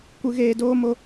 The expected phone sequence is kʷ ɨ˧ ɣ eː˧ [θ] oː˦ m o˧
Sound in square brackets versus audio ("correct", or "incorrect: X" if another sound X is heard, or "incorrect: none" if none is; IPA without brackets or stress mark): incorrect: d